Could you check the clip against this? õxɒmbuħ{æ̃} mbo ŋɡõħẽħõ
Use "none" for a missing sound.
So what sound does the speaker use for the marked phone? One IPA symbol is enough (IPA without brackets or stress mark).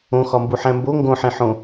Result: æ̃